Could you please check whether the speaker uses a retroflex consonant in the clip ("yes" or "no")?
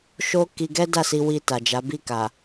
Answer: no